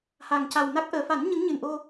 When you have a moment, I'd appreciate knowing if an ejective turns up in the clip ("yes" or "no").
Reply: no